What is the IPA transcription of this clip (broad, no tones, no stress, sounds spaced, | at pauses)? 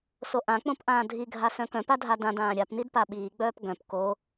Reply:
s o ʔ ã k͡p õ p ʔ ãː dʱ i ɡʱ a s œ̃ k œ̃ p a dʱ a d ã d ãː ɾʲ a p n i d p a ɓ iː ɡ͡b œː p ɡ œ̃ p k o